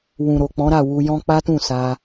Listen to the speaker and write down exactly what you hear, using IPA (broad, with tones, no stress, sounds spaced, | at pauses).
w ũ˨ ɾ o˨ k͡p ɔ̃˨˦ ɾ a˦˨ w u˧ j ɔ̃˦ k͡p a˦ t ũ˦˨ s a˧